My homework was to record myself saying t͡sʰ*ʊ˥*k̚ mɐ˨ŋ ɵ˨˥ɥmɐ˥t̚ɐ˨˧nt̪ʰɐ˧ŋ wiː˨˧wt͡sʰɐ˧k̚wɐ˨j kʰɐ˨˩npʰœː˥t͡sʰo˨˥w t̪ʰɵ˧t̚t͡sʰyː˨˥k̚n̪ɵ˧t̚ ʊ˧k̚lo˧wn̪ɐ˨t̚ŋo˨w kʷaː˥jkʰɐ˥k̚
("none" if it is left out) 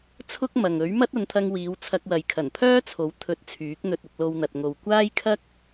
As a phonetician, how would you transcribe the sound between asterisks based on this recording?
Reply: ʊ˥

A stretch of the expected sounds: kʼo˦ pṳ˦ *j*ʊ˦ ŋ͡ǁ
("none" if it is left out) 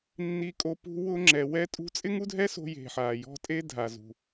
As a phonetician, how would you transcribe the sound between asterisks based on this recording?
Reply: w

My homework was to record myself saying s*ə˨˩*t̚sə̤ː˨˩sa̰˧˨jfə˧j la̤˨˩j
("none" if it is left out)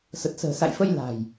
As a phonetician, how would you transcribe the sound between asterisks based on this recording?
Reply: ə˨˩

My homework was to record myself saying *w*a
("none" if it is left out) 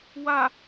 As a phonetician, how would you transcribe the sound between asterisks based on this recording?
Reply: w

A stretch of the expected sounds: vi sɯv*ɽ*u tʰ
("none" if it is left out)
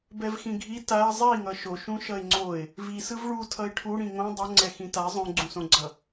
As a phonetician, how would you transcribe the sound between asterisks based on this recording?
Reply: ɭ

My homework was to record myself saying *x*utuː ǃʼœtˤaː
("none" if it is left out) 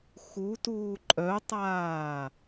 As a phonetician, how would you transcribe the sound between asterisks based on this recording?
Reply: x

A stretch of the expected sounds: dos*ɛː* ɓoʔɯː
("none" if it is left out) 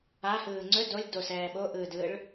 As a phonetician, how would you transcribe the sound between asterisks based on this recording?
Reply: ɛː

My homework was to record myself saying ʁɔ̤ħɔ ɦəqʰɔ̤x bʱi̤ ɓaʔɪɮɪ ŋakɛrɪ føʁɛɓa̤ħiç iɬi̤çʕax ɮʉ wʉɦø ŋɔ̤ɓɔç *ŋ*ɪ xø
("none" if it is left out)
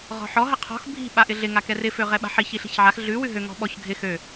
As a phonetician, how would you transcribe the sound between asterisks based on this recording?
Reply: ɡʱ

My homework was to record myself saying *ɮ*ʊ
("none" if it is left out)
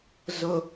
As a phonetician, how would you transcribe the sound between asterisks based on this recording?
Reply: z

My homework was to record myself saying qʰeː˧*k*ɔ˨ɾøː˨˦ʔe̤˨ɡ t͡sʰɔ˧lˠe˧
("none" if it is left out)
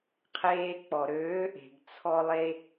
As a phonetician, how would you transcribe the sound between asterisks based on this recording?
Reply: k͡p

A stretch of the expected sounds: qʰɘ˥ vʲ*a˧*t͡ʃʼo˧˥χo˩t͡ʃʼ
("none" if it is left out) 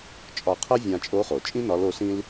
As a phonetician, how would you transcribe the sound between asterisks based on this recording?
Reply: ã˧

